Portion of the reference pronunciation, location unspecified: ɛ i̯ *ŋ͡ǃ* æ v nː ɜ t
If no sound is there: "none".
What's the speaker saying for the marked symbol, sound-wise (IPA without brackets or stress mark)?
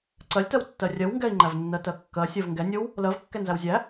ŋ͡ǃ